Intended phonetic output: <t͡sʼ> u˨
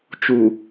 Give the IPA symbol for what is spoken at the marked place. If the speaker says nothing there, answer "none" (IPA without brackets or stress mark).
t͡ʃ